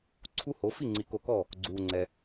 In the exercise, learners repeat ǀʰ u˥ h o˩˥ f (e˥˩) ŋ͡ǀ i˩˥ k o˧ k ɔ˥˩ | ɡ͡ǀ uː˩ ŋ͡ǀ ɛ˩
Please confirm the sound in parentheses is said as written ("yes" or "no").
no